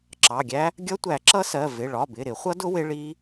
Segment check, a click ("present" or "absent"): present